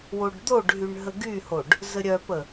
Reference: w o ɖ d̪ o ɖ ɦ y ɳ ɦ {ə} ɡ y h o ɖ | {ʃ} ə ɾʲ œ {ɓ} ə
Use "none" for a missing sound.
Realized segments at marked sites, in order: ə, z, p

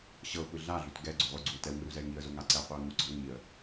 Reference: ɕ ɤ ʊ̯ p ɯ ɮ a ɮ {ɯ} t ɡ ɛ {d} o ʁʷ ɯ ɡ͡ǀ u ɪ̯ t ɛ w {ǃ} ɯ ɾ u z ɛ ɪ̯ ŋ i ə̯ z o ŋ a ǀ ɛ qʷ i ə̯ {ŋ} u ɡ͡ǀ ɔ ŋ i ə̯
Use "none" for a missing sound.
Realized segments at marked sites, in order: u, ɡ͡ǀ, ŋ, ŋ

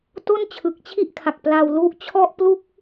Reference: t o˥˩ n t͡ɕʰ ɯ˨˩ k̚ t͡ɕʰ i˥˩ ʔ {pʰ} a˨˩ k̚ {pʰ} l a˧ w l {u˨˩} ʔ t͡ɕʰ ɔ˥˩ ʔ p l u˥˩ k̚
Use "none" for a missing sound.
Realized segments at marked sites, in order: kʰ, p, u˦˥

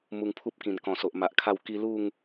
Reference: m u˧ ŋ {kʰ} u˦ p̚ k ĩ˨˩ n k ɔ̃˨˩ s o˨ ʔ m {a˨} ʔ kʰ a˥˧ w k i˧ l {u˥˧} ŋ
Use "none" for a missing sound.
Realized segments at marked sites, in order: pʰ, a˨, u˥˧

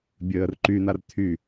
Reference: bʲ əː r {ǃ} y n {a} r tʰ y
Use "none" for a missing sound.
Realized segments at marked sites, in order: ǃ, a

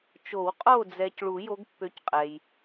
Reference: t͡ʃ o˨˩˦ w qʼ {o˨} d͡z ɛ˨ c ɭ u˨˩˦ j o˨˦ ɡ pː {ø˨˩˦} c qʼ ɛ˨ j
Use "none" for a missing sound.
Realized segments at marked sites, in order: o˦˨, ø˨˦

